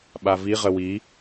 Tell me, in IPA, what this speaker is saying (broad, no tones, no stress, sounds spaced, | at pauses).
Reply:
ɓ a v i ʁ ə w i